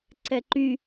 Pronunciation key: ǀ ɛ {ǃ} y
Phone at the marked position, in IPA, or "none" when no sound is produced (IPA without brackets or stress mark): ǃ